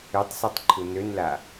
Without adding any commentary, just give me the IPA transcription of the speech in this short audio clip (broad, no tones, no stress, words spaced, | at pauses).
øtˤsatˤ ǃʰunønla